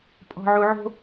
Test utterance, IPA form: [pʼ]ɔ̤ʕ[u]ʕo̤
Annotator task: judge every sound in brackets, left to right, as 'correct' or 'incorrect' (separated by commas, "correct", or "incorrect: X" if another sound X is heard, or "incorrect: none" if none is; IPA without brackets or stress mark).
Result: correct, correct